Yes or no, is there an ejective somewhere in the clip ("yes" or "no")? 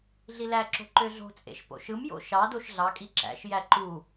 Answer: yes